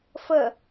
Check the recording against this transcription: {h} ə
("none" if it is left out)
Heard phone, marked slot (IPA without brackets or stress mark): f